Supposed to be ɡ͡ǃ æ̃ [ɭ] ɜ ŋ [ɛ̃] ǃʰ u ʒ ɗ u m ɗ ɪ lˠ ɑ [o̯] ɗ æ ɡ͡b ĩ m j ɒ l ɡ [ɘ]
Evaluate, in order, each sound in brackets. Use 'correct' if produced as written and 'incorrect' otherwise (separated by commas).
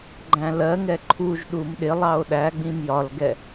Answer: incorrect, incorrect, correct, incorrect